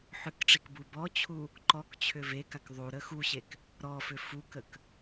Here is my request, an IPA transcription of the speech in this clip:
ħ ʏ k ʈ͡ʂ i k b u b ɔ t͡ɕʰ u | ǃ ɔ k t͡ɕʰ ʏ v e k a k ðˤ u ɾ ə x u ɕ e k | ɾ ɔ f ʏ f u k ə k

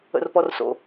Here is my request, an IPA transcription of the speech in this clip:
ə̰ r p ɔ r s o̰

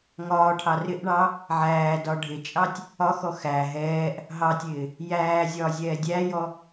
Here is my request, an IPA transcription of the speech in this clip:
ŋ ɒː ʈʰ ɑ r ɪ ʔ ɳ ɑ | ʕ æː d ɒ ɖʱ ɪ t͡ʃʼ ɑ tʲ | ɒ x ɔ x æ ɦ ɛː ʔ | ɦ ɑ tʲ ɪː | j æː zʲ ɒː zʲ ɛː dʲ æ j ɔ

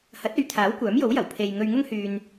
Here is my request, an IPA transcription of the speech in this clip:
h ɐ˨˥ t̚ ɵ˨˧ ɥ t̪ʰ aː˨˥ w kʷ œː˨˥ m j o˨˥ w j ɐ˨˩ w pʰ e˧ j ŋ ɵ˧ ɥ ŋ ʊ˥ ŋ h yː˧ n

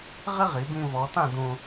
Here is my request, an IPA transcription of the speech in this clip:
ʁ ɪ˥ ʁ i˩˧ b ĩ˧ v ɔ˩˧ t ã˥˧ d ũ˧

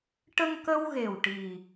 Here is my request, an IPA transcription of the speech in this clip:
ʈ ə˧ ŋ k ə˧ w ɣ e˨˩ w ʈ i˨˩

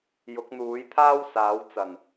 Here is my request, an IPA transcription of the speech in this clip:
j ʊ˨˥ k̚ n̪ uː˨˥ j t̪ʰ aː˥ w s aː˨˥ w t͡s ɐ˨˩ n

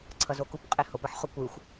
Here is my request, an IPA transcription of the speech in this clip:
ǀʰ ʌ z o k u p qʼ e h o p ɯ ħ χ o kʷ ɯ xʷ

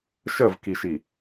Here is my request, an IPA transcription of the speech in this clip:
ʃ ə v k i ʃ i

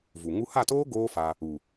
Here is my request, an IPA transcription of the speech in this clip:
v u˨ ŋ u˦ h a˦˨ t oː˦ ɡ oː˦ f a˧ | u˨

